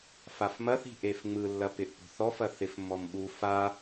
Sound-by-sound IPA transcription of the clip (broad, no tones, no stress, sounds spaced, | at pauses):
f a f m ɐ θ i̤ ʔ e f ŋ͡m ɯ lː ɐ p ɪ ʔ p o̤ θ ɔ f ɐ θ ɪ f mː ɔ m ɓ u f a